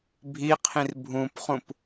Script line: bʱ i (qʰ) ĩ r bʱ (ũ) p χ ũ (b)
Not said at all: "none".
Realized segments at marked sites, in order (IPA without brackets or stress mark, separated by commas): qʰ, ũ, p